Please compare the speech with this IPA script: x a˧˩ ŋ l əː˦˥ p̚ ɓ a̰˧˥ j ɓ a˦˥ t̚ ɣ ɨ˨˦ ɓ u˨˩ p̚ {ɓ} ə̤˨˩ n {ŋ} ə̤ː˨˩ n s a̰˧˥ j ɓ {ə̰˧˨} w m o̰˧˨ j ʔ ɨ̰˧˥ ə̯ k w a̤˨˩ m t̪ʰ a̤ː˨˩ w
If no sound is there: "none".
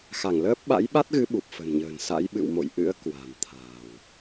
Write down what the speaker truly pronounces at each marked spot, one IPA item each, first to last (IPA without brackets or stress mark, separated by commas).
f, ɲ, ɨ̰˧˨